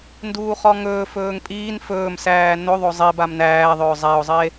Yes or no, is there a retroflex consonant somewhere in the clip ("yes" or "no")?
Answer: no